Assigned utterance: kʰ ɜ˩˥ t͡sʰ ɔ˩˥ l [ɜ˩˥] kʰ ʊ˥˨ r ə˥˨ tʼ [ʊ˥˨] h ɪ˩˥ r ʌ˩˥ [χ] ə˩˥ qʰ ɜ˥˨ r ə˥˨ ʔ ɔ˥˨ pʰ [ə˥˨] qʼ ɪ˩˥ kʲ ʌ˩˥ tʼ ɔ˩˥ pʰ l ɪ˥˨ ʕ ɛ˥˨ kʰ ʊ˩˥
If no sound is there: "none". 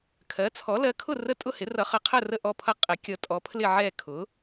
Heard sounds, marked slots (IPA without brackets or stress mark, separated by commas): ɜ˩˥, ʊ˥˨, χ, ʌ˥˨